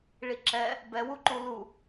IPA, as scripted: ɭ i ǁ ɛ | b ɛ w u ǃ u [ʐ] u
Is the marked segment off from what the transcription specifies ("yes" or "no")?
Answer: yes